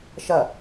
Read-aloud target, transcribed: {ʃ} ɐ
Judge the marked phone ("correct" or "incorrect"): correct